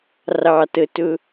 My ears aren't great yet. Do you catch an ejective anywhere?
no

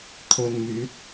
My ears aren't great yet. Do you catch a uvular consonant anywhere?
no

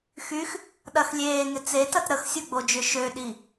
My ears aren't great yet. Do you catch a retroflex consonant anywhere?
no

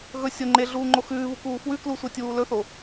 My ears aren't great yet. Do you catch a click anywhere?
yes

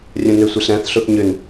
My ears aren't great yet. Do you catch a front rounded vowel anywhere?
yes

